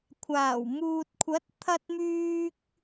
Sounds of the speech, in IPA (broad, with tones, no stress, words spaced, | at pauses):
kʷʰaː˨˩wmuː˨t̚kʷʰɐ˨˥t̚ t̪ʰɐ˧t̚myː˧k̚